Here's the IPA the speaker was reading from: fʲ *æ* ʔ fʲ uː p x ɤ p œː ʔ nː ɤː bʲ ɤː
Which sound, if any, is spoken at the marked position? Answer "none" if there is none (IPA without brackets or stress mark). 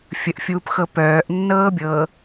ə